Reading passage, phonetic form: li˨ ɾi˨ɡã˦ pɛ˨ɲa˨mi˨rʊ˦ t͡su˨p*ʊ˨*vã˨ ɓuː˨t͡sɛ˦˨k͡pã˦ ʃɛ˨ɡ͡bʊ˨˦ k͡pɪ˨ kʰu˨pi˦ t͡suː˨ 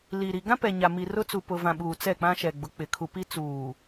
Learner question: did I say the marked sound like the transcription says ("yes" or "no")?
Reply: yes